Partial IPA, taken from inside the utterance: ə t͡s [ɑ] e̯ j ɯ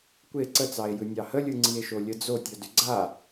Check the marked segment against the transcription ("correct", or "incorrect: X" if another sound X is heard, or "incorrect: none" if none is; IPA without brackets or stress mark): correct